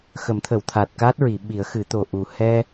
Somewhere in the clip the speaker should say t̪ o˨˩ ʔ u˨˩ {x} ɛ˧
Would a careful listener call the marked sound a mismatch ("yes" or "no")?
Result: yes